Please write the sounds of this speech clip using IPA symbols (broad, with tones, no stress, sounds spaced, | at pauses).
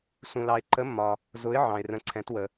s ũ˨ l ɑ˨ ɪ̯ ǃ ə˨˥ mː ɒ˨ | z ʊ˨˥ ɪ̯ ʕ ɑ̃˨ ɪ̯ r ə̃˨˥ ǀʰ ɛ̃˨˥ t w ə˨